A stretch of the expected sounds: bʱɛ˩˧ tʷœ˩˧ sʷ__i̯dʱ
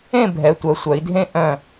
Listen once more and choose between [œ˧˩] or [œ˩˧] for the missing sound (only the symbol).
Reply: œ˩˧